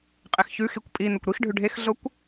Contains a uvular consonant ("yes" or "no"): yes